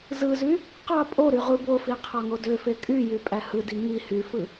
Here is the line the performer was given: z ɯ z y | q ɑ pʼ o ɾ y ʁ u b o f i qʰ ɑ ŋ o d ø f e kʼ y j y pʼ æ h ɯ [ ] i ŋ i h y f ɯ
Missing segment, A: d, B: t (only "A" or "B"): A